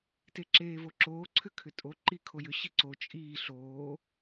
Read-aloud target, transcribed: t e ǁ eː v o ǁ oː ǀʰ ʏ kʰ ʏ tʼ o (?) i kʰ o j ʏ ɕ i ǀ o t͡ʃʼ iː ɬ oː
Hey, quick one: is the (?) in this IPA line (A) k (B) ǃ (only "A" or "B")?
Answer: B